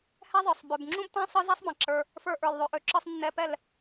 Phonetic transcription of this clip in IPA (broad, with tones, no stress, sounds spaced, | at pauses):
h ɛ˦ zˤ ə˞˨ sˤ b ø˨ b ŋ͡ǁ ũ˦ b t ã˦ sˤ ə˞˦ z ɛ˦ sˤ b ã˨ ǁ ə˞˧ | f ə˞˧ ʔ ə˞˨ l ðˤ ø˨ ʔ ø˨ ǁ ə˞˧ sˤ nː ɛ˧ p ɛ˦˨ l